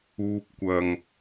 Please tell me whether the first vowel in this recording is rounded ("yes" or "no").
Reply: yes